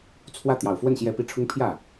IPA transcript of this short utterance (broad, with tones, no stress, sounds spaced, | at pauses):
t͡sʰ w ä˥˩ t̪ j ɑ˨˩ ʊ̯ f w ə˥˩ n ɕ j ɛ˧˥ p i˧˥ ʈ͡ʂʰ ʊ˥ ŋ pʰ j ä˥˩